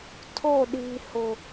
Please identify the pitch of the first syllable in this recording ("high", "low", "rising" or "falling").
falling